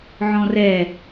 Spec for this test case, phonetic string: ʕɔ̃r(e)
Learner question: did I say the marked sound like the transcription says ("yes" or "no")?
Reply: no